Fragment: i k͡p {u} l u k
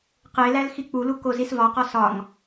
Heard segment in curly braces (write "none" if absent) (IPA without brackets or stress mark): u